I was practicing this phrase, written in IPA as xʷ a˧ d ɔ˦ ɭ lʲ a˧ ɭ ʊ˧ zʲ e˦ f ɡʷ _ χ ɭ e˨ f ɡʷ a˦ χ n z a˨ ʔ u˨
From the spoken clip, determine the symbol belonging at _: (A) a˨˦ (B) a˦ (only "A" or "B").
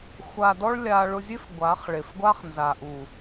A